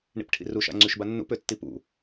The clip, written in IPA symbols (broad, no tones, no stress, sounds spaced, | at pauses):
ɳ ḭ p ʈʰ ḭ r u ʃ a̰ ŋ͡ǀ y ʃ b a nː ṵ p ø tː i p ṵ